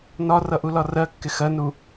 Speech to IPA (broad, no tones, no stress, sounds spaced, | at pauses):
n ɒ r ʌ ʔ u l ɒ r ɜ kː ɪ x ɜ n u